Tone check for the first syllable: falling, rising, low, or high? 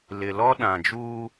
low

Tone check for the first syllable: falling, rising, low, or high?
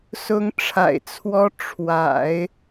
rising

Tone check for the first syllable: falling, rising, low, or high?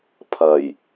low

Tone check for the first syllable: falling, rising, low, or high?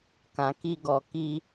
low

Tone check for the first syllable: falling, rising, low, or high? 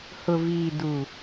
low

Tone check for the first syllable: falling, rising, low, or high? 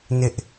high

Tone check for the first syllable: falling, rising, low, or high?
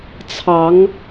rising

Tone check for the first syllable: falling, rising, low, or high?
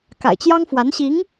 low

